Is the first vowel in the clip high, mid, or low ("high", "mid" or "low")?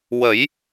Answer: mid